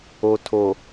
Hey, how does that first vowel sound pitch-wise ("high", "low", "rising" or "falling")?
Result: low